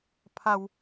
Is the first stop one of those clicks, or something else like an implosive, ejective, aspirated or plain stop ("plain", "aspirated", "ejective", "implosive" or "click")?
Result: aspirated